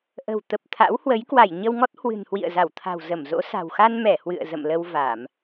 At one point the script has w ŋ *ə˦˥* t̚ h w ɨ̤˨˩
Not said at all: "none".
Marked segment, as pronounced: ɔ˦˥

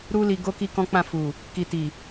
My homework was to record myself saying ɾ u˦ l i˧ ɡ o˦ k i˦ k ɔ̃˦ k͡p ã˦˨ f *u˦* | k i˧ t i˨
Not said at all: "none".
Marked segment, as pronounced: u˨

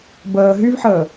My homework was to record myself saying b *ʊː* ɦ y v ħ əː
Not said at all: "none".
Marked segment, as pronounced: əː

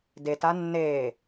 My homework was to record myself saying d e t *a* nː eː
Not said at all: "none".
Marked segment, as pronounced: a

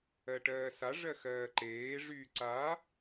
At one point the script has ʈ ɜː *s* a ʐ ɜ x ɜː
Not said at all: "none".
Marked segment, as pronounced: s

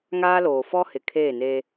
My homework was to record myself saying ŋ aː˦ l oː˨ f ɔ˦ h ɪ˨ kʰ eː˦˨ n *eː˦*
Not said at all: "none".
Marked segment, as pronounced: eː˦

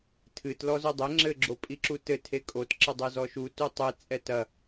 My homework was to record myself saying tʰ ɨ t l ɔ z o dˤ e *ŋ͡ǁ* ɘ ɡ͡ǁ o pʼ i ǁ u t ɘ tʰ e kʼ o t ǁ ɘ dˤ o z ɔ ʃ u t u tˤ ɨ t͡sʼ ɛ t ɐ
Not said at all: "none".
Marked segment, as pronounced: ŋ͡ǁ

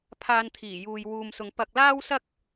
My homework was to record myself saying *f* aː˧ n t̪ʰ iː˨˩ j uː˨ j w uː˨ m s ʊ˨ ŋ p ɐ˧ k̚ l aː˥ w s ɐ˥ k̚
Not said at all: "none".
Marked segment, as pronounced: pʰ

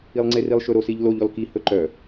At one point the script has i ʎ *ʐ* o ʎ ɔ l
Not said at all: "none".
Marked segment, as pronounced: l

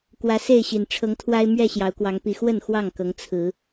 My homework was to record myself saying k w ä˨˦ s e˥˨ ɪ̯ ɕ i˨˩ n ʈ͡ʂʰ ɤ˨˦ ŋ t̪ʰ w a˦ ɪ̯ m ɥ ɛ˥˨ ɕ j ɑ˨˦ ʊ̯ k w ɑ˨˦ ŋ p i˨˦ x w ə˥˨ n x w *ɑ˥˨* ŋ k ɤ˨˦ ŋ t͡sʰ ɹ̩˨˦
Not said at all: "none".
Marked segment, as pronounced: ɑ˥˨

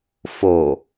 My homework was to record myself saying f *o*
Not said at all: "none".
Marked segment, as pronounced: o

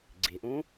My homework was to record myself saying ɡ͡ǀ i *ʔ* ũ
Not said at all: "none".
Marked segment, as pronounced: ʔ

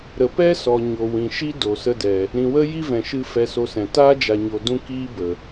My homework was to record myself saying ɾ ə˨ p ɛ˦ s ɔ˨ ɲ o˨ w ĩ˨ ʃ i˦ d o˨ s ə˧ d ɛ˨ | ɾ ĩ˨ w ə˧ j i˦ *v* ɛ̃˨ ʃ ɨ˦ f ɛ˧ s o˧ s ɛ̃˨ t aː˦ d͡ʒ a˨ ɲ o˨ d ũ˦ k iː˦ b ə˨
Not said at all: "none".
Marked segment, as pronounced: v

